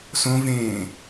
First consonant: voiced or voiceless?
voiceless